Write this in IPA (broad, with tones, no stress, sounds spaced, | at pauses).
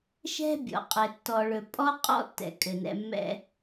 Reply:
ʃ ɛ̤˦ bʲ ɔ̰˨ qʼ ɘ˨ tː ɔ˨ ɭ ɵ˨ pʼ ɔ˦ qʼ ɔ̰˦ tː ɛ̰˨ kʼ ɘ˨ n ɛ̰˦ mː ɛ̰˦